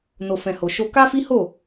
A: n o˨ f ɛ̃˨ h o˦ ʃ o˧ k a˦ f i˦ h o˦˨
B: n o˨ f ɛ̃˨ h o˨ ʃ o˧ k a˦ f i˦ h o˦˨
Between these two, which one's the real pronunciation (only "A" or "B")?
B